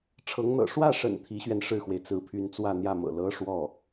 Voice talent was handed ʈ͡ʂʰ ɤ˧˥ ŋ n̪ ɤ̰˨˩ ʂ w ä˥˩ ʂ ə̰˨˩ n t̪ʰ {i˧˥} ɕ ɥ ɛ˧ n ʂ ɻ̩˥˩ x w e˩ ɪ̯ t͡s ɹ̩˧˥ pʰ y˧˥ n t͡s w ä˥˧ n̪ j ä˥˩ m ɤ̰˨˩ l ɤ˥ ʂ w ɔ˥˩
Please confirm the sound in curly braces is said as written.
yes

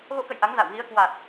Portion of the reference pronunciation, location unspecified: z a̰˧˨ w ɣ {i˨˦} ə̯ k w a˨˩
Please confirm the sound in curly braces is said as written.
yes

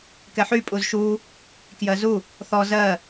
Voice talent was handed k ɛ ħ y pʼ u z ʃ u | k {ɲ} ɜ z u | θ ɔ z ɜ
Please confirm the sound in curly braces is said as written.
no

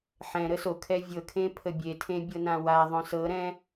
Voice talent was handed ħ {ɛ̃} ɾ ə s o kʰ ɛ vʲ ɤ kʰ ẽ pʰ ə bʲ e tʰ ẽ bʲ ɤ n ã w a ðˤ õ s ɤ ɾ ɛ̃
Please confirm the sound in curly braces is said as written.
yes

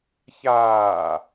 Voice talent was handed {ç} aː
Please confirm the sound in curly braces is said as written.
yes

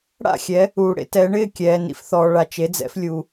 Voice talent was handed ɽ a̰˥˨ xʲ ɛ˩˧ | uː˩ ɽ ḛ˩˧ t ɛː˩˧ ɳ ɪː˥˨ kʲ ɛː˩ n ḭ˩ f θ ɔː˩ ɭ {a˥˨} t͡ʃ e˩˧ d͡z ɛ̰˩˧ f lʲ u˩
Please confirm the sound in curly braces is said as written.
no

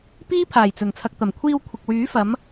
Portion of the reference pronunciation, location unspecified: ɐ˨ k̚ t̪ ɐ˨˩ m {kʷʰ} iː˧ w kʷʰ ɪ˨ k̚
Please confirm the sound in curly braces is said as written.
yes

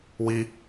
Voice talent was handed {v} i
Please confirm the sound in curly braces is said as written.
no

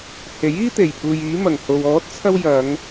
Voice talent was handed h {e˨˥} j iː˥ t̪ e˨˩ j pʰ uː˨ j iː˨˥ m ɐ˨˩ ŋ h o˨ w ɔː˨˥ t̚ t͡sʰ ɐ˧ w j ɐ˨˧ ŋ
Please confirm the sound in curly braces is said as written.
yes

